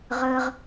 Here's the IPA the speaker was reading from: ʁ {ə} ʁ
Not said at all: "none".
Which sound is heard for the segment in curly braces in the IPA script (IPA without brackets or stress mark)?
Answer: ə